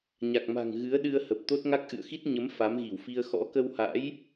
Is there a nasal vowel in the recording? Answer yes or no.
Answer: no